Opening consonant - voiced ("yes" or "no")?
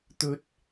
no